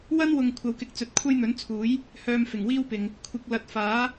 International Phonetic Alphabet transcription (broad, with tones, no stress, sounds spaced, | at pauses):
w ɐ˥ n w ʊ˨ ŋ kʷʰ ɐ˧ w k ɪ˧ k̚ t͡s ɵ˨ t̚ kʷʰ ɐ˥ j n̪ ɵ˨˥ n t͡sʰ uː˨˥ j | h œː˧ m f ɪ˨˩ ŋ w iː˥ w p ɪ˨ ŋ | kʷʰ ɪ˧ k̚ l ɐ˧ t̚ f aː˨˥